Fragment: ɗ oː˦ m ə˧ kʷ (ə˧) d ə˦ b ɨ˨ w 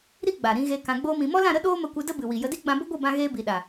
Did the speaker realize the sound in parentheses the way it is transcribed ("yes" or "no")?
no